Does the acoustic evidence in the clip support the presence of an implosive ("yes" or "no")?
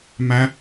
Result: no